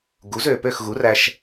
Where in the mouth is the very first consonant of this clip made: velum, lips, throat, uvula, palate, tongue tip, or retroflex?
velum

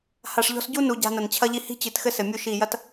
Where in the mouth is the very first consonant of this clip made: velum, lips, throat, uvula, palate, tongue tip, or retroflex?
throat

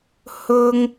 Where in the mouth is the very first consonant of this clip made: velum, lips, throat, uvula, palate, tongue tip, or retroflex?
throat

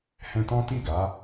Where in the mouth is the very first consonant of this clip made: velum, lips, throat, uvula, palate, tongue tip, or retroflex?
throat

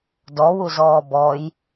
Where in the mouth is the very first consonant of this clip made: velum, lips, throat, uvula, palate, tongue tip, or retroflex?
tongue tip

